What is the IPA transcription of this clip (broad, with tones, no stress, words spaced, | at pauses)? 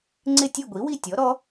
ŋ͡ǀɪ˥˧tʲe˥˧ɡʷi˨˥wi˥˧ tʲɔ˨˥ɾɔ˦˥